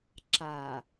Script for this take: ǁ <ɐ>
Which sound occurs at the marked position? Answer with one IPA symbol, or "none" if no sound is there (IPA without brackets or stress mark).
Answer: a